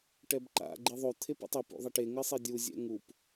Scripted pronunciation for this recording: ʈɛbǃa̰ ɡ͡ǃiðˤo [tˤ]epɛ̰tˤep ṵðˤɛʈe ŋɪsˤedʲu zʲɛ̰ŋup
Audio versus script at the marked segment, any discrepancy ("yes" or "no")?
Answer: yes